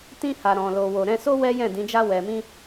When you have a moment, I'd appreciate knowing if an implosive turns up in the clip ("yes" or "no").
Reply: no